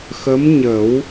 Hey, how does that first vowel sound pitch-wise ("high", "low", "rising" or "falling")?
rising